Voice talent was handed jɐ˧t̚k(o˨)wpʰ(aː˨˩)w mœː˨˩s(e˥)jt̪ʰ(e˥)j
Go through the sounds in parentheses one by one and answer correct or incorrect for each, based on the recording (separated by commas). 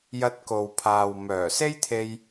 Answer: correct, incorrect, correct, incorrect